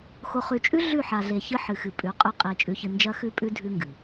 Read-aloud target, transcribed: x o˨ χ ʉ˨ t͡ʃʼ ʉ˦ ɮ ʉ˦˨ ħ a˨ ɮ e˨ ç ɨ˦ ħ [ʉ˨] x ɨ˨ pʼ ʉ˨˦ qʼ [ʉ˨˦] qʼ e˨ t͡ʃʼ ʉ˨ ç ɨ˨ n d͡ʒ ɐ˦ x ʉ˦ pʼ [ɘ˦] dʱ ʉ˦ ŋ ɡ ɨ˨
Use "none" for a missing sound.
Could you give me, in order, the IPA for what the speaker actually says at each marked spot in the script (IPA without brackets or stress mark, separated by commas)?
ɨ˨, ʉ˦, ʉ˦